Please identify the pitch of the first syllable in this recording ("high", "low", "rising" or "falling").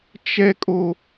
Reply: high